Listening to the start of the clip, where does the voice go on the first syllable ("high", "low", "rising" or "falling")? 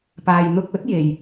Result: low